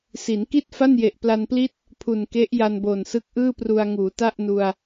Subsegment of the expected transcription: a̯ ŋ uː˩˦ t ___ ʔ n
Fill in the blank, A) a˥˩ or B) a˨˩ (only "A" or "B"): A